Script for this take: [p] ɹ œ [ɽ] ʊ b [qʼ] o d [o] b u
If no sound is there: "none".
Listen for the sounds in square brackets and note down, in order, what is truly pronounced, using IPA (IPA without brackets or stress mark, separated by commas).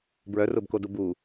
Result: b, r, k, u